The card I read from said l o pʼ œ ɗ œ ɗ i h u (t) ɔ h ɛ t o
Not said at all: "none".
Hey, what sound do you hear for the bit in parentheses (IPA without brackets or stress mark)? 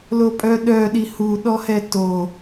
ɗ